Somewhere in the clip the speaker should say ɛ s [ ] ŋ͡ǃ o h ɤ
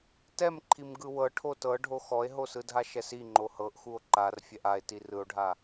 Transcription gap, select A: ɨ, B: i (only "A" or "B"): B